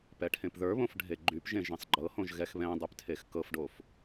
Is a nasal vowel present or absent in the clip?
present